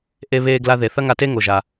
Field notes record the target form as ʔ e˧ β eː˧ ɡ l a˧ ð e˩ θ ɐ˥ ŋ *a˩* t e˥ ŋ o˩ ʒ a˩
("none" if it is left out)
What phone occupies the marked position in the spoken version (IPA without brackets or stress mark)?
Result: a˧